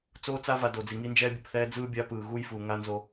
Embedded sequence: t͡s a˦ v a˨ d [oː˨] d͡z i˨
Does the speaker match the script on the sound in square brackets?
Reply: no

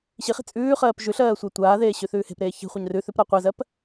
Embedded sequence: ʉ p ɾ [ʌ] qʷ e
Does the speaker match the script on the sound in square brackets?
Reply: no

